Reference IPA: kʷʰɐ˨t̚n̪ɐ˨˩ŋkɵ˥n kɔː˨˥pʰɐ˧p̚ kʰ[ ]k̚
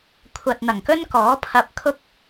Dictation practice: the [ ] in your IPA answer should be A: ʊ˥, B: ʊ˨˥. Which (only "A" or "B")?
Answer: A